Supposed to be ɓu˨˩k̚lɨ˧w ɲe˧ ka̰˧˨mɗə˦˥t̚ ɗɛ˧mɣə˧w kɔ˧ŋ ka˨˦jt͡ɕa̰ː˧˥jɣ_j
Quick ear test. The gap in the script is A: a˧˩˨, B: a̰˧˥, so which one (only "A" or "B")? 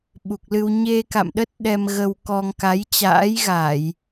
A